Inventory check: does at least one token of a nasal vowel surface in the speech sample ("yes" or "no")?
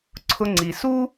no